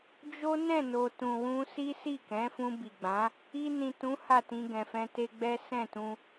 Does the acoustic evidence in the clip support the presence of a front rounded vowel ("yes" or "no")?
no